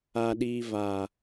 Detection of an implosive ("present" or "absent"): present